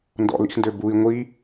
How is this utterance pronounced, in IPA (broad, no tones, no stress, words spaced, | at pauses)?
ndɔ̰lḭxndø bui̯ ŋʷi